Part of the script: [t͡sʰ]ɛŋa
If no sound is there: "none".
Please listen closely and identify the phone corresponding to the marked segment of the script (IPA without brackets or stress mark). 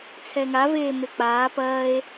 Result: t͡sʰ